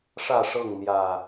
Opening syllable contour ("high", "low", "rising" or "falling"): falling